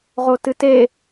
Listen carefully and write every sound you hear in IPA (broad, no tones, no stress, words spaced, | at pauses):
ʁotɨte